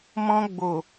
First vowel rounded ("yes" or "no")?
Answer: yes